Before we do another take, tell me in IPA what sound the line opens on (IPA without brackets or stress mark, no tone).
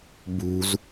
b